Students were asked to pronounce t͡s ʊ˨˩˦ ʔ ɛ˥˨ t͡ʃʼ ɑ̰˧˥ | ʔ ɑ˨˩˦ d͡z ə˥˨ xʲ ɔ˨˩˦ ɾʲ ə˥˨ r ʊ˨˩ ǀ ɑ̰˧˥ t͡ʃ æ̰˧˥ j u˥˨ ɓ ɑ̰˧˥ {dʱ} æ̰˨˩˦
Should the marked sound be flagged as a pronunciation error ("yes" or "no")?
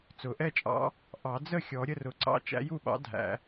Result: no